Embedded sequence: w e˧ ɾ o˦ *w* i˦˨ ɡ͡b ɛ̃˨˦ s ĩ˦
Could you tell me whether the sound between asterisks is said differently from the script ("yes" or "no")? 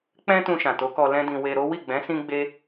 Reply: no